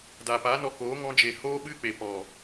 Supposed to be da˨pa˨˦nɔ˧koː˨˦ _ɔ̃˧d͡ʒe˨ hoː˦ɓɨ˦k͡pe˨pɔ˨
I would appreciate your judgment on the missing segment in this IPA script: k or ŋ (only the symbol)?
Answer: ŋ